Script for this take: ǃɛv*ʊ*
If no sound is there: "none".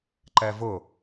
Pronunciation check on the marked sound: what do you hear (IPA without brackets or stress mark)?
ʊ